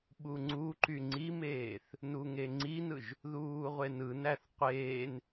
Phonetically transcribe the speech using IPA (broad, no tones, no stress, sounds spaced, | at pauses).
ɓ u ŋ͡ǀ u ǃ y ŋ͡ǀ i m eː θ | n u ŋ e ŋ͡ǀ i n ɯ ʒ | ð uː ʁʷ e n ɯ n æ θ qʷ eː n